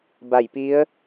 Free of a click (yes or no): yes